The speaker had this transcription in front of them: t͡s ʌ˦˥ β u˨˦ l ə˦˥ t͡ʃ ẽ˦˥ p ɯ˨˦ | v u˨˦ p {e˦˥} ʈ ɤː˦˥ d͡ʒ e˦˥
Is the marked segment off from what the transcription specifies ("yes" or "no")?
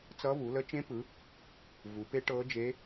no